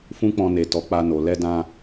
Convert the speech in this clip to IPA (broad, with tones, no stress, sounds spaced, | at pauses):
f ũ˦ k͡p ɔ̃˧ n e˨ t ɔ˨˦ k͡p a˧ n o˨ l ɛ˧ d ã˧